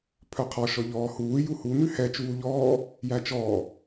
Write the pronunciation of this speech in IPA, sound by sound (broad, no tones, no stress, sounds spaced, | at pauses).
pʰ œ qʰ ɔ ʃ ɔ ʎ ɔː h uː j u h u n ʉ h ɛ t͡ʃ uː ʎ ɔː | j æ t͡ʃ ɔː